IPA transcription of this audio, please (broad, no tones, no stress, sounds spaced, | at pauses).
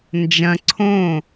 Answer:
n d͡ʒ ɐ̃ ǀʰ õ